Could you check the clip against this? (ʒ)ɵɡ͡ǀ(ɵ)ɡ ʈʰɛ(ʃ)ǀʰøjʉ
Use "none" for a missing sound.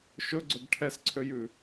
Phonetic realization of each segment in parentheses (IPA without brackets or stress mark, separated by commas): ʃ, ɵ, s